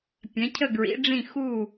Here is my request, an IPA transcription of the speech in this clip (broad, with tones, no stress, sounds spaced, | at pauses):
pʲ ɛ̃˩˥ cʰ ə˥˨ ɡ ɹ ḭ˩˥ ɖ͡ʐ ĩ˥˨ x u˥˨